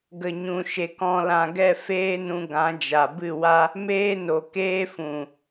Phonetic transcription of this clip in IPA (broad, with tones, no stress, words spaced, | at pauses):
ɡə˨ɲũ˨ʃe˨k ɔ̃˧lã˧ɡɛ˦˨ feː˦nũ˧ ɡã˨˦d͡ʒa˨ bɨ˦˨ wa˦ | meː˦no˨ keː˦fũ˨